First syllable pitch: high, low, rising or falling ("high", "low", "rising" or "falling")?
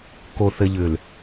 low